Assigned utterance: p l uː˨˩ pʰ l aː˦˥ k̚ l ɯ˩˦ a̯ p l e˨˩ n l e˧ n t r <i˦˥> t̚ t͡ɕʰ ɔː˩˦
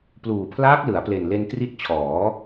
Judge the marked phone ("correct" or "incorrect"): correct